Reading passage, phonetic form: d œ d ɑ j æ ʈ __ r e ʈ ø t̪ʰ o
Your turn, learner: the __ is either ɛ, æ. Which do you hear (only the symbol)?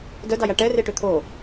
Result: ɛ